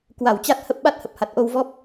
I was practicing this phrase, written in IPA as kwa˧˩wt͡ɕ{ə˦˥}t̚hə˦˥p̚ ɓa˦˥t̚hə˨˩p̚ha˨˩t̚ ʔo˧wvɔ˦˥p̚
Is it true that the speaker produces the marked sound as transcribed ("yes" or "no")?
no